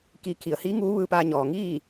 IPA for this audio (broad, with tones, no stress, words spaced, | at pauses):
ki˧ kʰi˩ə̯hiː˧˥ ŋuː˧˥ ʋɯː˧paː˧ɲɔː˩ ŋiː˥˨